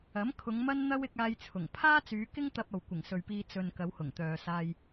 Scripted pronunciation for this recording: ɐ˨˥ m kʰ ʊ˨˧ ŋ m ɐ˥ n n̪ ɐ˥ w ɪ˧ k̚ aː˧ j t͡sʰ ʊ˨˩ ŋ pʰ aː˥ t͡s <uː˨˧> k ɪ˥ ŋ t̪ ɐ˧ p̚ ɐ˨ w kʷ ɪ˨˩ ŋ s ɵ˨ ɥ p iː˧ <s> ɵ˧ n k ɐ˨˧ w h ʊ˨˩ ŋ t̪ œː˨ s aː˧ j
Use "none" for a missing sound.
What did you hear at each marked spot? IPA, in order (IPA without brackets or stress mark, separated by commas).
yː˨˧, t͡s